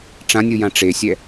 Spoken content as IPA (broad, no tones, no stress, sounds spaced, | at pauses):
ʈ͡ʂ ã nʲ ɯ j ã ʈ͡ʂ e sʲ ɛ